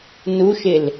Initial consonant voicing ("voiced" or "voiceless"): voiced